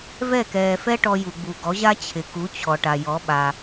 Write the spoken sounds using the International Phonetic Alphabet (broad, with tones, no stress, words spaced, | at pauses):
vɛ˥˩kɛː˩fɛ˥ ʈɔ˧ju˩ɡ͡bu˩ ɡɔ˩˥ʑa˥ t͡ɕʰɪ˩ku˩˥ t͡ɕʰɔ˩ʈa˩jɔ˩˥ɓa˩